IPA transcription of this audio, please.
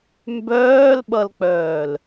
mbœːlɓʌlk͡pœːl

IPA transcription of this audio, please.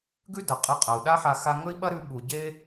ɡʉ˥ dɐ˩qʼɨ˧ qʼɐ˩u̯ɗa˥ħa˧ xa˧ŋɵ˥i̯ɓɐ˥ɾʉ˧ ɓu˩ ɟe˥

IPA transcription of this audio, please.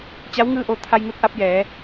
t͡ɕa˧˥wŋɯː˥˨ʔo˥˨ t̪ʰa˧jŋu˧t̚ʔa˧p̚ jɛː˩˧

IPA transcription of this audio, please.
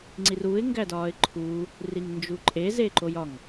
ŋ͡ǀiruɪ̯ ŋɡædɒːɪ̯ǃʰuː | riŋnd͡ʒuǃʼe zeǃojɒŋ

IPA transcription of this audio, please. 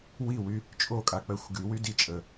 wiwy | t͡ʃʼokʼak͡pɜxʷ ɡywy dit͡ʃʼə

